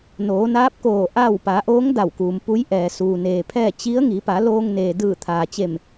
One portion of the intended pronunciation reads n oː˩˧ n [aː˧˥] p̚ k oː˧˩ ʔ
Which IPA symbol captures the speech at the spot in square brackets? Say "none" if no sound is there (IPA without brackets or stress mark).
aː˧˥